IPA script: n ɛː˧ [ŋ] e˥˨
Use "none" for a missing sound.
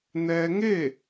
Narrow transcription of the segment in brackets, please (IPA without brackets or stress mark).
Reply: ŋ